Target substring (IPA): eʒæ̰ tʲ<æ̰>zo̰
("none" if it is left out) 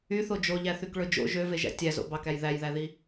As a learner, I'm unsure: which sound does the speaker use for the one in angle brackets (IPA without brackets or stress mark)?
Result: æ